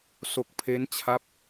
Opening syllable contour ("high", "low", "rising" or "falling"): low